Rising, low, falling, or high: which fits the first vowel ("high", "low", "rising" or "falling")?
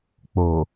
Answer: low